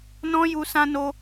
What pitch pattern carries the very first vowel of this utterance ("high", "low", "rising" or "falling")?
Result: high